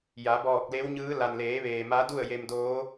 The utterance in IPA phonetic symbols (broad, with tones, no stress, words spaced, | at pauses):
ja˩˧bɔː˧˩k̚le˧˥wɲɯː˧˥ la˩nleː˩˧ʋeː˩ ma˧˥du˥˨ə̯je˧mdoː˧˥